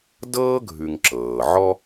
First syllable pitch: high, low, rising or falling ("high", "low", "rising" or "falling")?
high